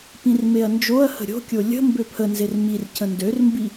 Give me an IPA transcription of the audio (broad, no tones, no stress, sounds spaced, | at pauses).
p ĩ r m e ɐ̯ n d͡ʒ o ɐ̯ h ə̤ ɾʲ o̤ kʲ o lʲ ə̤ m b ø pʰ ə n z e r m i r cʰ ə̃ n d ø r m b i